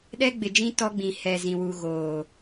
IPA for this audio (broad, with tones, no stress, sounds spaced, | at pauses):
ɗ ɛ˦ ɡ͡b ɪ˨ d͡ʒ ĩ˦ t ɔ˦ ɡ͡b ĩ˨ h ɛ˨ z ĩ˨ w u˨ ɣ oː˨